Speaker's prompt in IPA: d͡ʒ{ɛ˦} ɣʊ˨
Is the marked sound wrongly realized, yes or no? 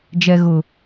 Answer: yes